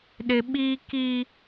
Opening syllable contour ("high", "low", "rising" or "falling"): high